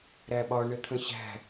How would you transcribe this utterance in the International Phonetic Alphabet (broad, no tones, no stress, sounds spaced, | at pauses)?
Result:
ɾ æ ɓ ɒ ɳ ə t̪ʰ ə̃ ɕ æ̤